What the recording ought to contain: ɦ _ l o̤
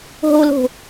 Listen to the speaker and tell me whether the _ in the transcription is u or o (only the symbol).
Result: o